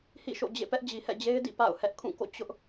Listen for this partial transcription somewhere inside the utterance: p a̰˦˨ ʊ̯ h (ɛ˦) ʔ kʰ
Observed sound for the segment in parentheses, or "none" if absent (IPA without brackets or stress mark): ɛ˦